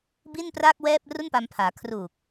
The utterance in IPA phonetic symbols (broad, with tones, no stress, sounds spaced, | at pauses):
b i˥˩ n p r aː˥˩ k̚ w ɛː˥˩ p̚ r u˥˩ n p a˧ m pʰ aː˩˦ kʰ r uː˨˩ k̚